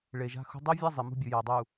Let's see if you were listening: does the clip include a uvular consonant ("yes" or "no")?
no